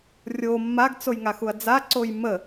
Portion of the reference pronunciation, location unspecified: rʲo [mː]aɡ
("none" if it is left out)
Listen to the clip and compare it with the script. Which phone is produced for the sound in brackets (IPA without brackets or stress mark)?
mː